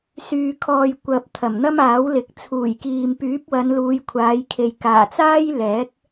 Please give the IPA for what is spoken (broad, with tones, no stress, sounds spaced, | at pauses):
s yː˨ kʰ ɔː˨ j kʷ ɐ˨ p̚ t̪ʰ ɐ˨˩ m n̪ ɐ˥ m aː˨˥ w l ɪ˨˥ k̚ t͡sʰ uː˨˩ j k iː˨ m p yː˨˥ p̚ w ɐ˨˧ n l uː˨˧ j kʷʰ aː˨˧ j kʰ e˨ j k aː˨˩ t͡s aː˥ j l ɛː˨˥ k̚